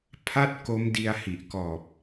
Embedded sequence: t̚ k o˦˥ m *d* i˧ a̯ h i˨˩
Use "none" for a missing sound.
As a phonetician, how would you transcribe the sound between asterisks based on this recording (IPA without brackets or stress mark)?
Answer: d